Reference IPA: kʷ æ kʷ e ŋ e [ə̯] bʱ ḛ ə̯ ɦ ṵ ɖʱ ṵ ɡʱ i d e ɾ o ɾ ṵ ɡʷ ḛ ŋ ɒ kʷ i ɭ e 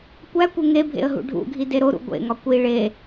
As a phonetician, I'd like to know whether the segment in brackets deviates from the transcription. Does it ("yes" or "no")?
yes